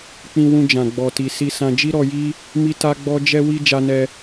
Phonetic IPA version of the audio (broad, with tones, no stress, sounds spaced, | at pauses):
k͡p ĩ˧ w ũ˧ d͡ʒ ã˨ ɡ͡b ɔ˨ t i˨ s i˧ s ã˧ d͡ʒ i˦ ɾ ɔ˧ j i˦ | m i˦ t a˦ ɡ͡b ɔ˦ d͡ʒ ɛ˧ w i˧ d͡ʒ a˧ n ɛ˧